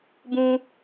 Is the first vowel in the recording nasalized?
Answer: yes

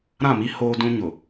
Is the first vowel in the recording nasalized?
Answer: yes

